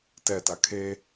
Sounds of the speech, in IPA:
tɛta kʰe

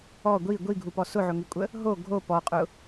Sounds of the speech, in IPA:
ɔ ɡʷi ɡʷiɡʱupɔ sʊʕʊŋikʷʼə | ɦo ɡʱo pɔqʼʊ

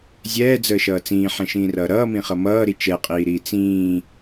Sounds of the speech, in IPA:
zʲɛːd͡zəːʃʌː t͡sĩːħɛ̃ʃĩːrʌː ɾʌːmĩχʌ mʌːɾi t͡ʃɛqʼiːɾiː t͡sĩː

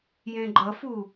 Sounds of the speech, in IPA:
jẽɡ͡ǃʌfu

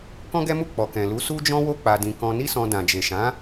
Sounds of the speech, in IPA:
kɔ̃˦ɡɛ˦mu˦˨ k͡pɔ˨kɛ̃˨lu˨˦ su˦d͡ʒɔ̃˦wo˦ k͡pa˧dĩ˧ kɔ̃˧ni˦sɔ̃˧ dã˨d͡ʒe˨ʃã˨˦

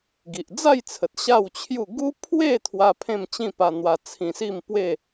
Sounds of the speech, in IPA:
ɡi˨ʔd͡za˥˧jt͡sʰə˨t̚ ɕa˥˧wt͡ɕʰju˥˧ ɡu˦pʰwe˥˧ t̪ʰwa˦pʰẽ˥˧m t͡ɕĩ˥˧pa˧n̪wa˧ t͡sʰĩ˧si˥˧mpwe˥˧

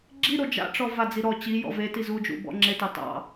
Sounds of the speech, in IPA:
ɡ͡ǁiɾo d͡ʒa̰ʈ͡ʂɔ vad͡zi ɾɔ t͡ɕi jɔ̰veti zud͡ʒṵ bɔ̰ŋ͡ǁetɑ tɑ̰

